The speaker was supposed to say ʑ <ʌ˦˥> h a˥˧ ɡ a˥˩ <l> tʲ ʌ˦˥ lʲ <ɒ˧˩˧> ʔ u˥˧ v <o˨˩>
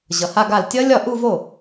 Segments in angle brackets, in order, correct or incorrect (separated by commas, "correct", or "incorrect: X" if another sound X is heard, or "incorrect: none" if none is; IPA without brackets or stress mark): incorrect: ʌ˨˩, correct, incorrect: ɒ˥˩, incorrect: o˥˩